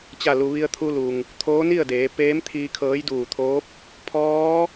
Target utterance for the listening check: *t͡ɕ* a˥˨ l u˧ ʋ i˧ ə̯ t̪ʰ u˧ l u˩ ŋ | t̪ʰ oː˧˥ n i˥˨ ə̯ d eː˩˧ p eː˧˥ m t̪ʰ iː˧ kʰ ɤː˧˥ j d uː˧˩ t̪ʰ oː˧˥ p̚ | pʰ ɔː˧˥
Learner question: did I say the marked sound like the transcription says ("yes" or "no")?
yes